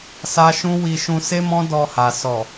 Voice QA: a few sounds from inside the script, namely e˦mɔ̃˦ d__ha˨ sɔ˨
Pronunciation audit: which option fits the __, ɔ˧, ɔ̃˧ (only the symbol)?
ɔ˧